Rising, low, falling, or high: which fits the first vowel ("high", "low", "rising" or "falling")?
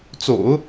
low